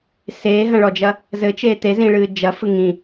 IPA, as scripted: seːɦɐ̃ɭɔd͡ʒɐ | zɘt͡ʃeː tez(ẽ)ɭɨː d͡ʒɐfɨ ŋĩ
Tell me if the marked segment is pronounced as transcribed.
no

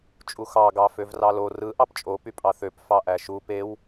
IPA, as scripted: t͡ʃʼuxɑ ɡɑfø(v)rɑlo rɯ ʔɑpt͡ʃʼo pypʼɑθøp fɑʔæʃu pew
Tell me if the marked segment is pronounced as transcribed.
yes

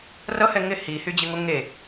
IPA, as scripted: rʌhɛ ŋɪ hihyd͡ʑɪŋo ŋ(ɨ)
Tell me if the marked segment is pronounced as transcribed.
no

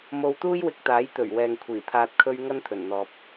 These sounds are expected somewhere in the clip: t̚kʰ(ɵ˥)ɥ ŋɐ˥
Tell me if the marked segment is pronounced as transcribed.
no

